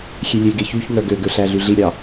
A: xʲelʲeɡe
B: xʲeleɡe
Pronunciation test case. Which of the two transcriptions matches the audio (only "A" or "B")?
A